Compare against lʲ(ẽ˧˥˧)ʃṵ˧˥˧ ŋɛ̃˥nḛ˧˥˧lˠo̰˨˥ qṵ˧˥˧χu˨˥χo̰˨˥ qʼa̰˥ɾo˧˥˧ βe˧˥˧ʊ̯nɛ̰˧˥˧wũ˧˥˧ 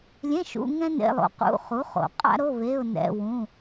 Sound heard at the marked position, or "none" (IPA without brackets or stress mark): ẽ˧˥˧